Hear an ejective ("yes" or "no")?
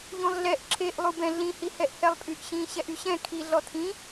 yes